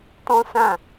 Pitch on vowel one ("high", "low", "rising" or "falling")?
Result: high